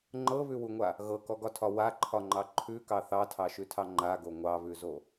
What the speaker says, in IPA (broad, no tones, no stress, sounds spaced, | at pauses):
ŋ͡ǃ ɤ β ʉ w u ŋʷ a | ɣ ɤ k ɔ ɡ ɒ tʰ ɒ w a ǃʰ ɒ ŋ͡ǃ ɑ ǃʰ ʉ k ɑ θ ɑ tʰ ɑ ʃ ʉ tʰ ɑ ŋ͡ǃ a ɡ o ŋʷ ɑ β ʉ z o